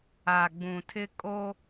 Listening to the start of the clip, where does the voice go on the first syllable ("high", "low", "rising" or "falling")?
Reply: low